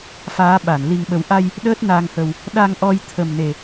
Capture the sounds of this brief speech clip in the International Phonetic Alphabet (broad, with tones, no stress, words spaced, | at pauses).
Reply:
faː˨˦ɓa˧˩n li˨˩ŋɓə˨˩wʔa˧j | ɗəː˦˥t̚na˧ŋhə˧w | ɗa˧ŋʔɔ˧j t̪ʰə˨˩mne˨˩